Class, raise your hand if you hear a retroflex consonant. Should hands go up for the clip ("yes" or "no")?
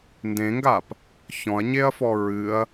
no